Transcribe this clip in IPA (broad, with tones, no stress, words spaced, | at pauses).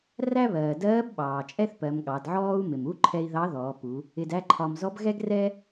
ræ˥βɜː˩dɜː˧˥b ɓɑː˩t͡ʃʼɛ˥θpɜ˩˧m ɠɑ˩˧dʕɔː˥u̯ mɪ˩mu˧˥ǃʰɛ˧i̯ ðɑ˧˥ðɔː˩˧pu˩˧ | ɪ˧dæ˥ǃʰɒ˧m zɔ˧˥bɣɛ˥ɡrɛ˥